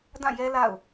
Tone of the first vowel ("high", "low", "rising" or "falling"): falling